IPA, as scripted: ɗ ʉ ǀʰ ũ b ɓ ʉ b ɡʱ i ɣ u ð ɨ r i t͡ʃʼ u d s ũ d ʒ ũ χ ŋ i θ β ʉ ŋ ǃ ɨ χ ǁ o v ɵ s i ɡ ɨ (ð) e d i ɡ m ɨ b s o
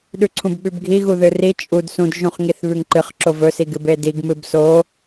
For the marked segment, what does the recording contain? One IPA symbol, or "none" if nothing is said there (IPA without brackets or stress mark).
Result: b